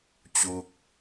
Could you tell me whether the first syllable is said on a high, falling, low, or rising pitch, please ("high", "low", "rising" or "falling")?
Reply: falling